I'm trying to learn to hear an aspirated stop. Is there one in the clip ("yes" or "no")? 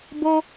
no